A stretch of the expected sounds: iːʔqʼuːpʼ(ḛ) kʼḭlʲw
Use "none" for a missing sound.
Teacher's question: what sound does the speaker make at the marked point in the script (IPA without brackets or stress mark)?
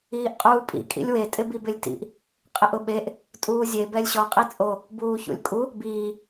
ḭ